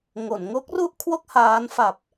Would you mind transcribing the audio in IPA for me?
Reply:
ŋ o˩˦ n ŋ o˦˥ k̚ r u˥˩ ʔ kʰ w o˥˩ k̚ h aː˦˥ n f a˨˩ p̚

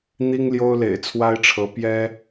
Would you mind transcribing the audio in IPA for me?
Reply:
n̪ i˥ ŋ l j o˥ ʊ̯ l ḛ˨˩ ɪ̯ t͡sʰ w a˥ ɪ̯ ʈ͡ʂʰ ɤ˧˥ p j ɛ˥

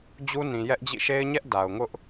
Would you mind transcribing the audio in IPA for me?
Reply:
d͡ʑ u˦ n ĩ˨ j ɛ˦ ʔ d͡ʑ ḭ˦˨ ʃ e˦ ɪ̯ ɲ ɛ˦ ʔ d a˨ ʊ̯ ŋ ʊ˦ ʔ

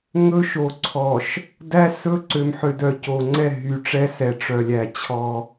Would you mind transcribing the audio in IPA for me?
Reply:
ŋ ɵ˦ ʃ o˨ ǀʰ ɔ˨ ʃ | d æ˦ s ɵ˦ ǀ ø˨ m ħ ø˨ d œ˨ c o˨ ŋ͡ǀ ɛ˦˨ ɦ y˨ ʈ͡ʂ ɛ˦ s ɛ˨ ʈ͡ʂ œ˨ lʲ æ˨ t͡ɕʰ ɔ˦

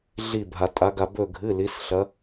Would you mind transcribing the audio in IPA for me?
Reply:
ɮ i˧˩ bʱ a˩ tʼ a˩˧ ɡ a˩ b ɵ˧˩ ɡʱ ɨ˩˧˩ l i˩˧ s ɬ ɐ˩˧

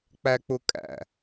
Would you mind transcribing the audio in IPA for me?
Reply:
k͡p æ k͡p ʊ kʼ æ̰

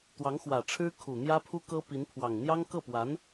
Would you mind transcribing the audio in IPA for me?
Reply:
t̪ w ɑ˧˥ ŋ x w ä˨˩ ʈ͡ʂʰ ɻ̩˥ kʰ u˨˩ n̪ j ä˥ pʰ u˥ k ɤ˥ p i˧˥ n pʰ w ɑ˨˩ ŋ n̪ j ɑ˥ ŋ k ɤ˥˩ p w a˧˥ n

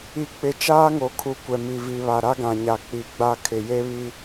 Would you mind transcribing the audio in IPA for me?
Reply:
i˨ k͡p ɪ˨ t͡ʃ aː˦ ŋ o˨ kʰ u˨˦ kʷ ɛ˨ m i˨ v i˨ β a˨ ɾ a˦ ɡ ã˨ ɲ a˨ k͡p i˨ ɡ͡b a˦ kʰ ɪ˨ j e˦ β i˦

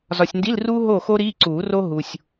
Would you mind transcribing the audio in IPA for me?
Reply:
z ɒ˨ sʲ n d i˧˥˧ l r uː˥ ɦ oː˥˨ x o˥ ɾ iː˧˥˧ ǀ uː˨˩˦ r o˥ ɦ u˨ sʲ

